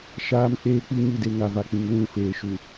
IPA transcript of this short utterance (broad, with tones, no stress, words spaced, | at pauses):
ʃaː˨m k͡peː˦k͡pi˦ɲi˦˨de˦ ŋa˨va˨k͡pĩ˨ŋ lũ˦˨feː˨ ʃu˨